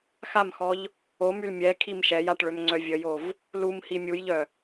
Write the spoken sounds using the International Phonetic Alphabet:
xamxɔʎ | omyl mʲɛ kʰimʃɛjaʈ ɭømŋ͡ǀœvʲəjov | lumhi mʲujʎœ

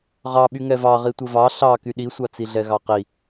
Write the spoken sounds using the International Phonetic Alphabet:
ʁɑɓyŋɛ vɑʁi tʷɘvɑ ɬɑ kyɗisʷɑt͡si ɮɛɣɑqi

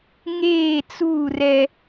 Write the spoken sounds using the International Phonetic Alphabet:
ŋeː˦˨t͡suː˦˨ rɛ˦

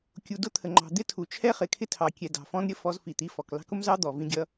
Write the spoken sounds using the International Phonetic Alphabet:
kʲu˨dʊ˦t̪ʰə˨ŋ͡ǃɑ̤˨ d̪ɪ˦tʰu˨t͡ʃʰɛ˦ χɪ˨kʰɪ˦tʰɑ˨kʲɛ˨ dɑ̤˨fɔ̃˦n ɾʲə˦fɔ˦z fi˨t̪i˦ fɔ˨k lɑ̤˦kʊ˦mzɑ˦ d̪ɔ˨vĩ˦ɡʲʌ˦

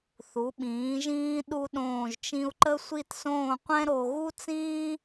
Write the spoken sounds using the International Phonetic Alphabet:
θu˩˧ɓĩː˩˧ʒĩː˧ ɗu˧ɗõː˧˩ʒt͡ʃĩ˧u̯ ǃə˥sʷi˥˧tsõː˥˧ qʷɛ̃˥ɾo˧ ɣu˥t͡sĩː˥

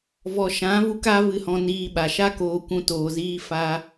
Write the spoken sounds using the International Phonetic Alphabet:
vɔ˨ʃã˨˦vu˧k a˧ vɨ˧hɔ̃˧niː˧ɓa˨ ʃa˦koː˧kʷũ˧ toː˨ziː˧ fa˧

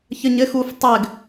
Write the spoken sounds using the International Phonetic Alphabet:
çəɲɘ xuf tˤɘɡ

